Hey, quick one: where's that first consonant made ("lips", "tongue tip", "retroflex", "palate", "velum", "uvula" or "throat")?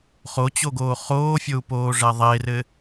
uvula